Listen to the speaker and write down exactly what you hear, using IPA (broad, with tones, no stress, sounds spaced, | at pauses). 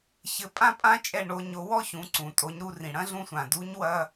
ç ɘ˩˧ pʼ ã˥ pʼ ã˥ t͡ʃʼ ɛ˧ ɳ o˩˧ ɲ o˩˧ w ɔ˥ ç ũ˩˧ ǀ ũ˩ tʼ o˩˧ ɲ ɾ u˧ r ĩ˩ ɽ ɐ̃˥ ɮ ũ˧ sʷ ã˩ d u˧˥ ɲ w ɐ˧